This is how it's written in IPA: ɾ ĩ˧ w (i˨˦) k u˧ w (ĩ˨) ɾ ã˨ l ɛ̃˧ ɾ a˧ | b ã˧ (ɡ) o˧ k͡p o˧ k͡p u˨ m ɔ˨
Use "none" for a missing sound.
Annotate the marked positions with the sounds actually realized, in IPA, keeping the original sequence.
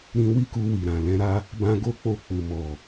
i˦, i˨, ɡ

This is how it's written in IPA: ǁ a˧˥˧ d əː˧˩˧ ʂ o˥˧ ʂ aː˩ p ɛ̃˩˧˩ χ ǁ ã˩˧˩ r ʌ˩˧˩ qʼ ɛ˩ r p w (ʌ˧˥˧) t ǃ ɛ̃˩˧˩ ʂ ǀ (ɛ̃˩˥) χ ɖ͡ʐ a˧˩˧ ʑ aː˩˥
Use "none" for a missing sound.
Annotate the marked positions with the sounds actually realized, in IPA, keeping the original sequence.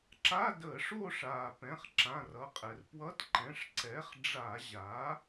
ʌ˧˥˧, ɛ˩˥

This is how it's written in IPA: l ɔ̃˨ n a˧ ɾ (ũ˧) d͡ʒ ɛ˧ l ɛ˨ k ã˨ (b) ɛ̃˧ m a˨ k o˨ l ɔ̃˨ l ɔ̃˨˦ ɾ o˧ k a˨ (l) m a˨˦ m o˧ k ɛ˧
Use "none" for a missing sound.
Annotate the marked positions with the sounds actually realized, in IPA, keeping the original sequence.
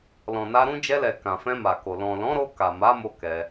ũ˧, f, none

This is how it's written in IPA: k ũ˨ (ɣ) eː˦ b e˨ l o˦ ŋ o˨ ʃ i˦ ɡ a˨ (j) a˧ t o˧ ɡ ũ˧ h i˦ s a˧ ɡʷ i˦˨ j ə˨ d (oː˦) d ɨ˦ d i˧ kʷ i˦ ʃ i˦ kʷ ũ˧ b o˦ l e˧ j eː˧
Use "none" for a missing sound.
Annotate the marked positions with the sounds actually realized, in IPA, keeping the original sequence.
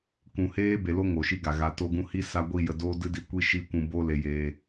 h, ɣ, oː˦

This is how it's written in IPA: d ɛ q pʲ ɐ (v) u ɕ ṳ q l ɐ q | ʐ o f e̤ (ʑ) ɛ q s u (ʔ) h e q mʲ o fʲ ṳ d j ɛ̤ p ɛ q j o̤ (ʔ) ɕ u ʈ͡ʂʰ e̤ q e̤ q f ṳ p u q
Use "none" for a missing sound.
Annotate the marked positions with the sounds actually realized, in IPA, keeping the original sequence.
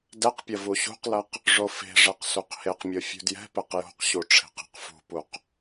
v, ʐ, q, q

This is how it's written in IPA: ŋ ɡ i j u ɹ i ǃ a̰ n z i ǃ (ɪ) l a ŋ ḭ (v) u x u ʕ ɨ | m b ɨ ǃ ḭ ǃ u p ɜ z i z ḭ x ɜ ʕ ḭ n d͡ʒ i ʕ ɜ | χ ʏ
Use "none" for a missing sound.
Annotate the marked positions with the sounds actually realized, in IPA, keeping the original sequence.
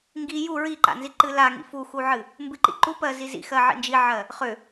ɨ, f

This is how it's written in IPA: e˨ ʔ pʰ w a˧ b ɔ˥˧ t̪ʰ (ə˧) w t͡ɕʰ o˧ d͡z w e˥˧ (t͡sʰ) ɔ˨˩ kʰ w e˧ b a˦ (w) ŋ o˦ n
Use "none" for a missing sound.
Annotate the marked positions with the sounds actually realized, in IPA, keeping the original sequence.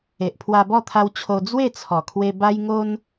a˧, t͡sʰ, j

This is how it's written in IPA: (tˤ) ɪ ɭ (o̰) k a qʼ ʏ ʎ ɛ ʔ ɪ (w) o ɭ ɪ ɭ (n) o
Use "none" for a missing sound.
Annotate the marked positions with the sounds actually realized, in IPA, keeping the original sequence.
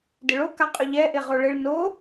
d, o, ʁ, n

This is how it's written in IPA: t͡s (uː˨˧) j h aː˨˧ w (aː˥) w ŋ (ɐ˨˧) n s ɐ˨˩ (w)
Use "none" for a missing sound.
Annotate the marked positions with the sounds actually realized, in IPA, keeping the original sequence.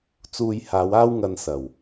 uː˧, aː˥, ɐ˧, w

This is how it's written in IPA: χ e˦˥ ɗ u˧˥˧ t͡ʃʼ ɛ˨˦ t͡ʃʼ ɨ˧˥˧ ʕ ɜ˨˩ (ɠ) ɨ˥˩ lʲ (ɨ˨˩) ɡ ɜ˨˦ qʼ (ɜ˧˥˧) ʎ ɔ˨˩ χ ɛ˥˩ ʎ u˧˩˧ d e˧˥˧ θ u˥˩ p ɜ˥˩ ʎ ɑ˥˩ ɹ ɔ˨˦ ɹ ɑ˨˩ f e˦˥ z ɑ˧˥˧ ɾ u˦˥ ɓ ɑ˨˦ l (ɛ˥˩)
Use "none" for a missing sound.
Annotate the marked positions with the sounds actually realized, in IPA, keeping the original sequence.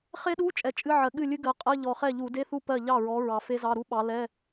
ɠ, ɨ˦˥, ɜ˧˥˧, ɛ˧˥˧

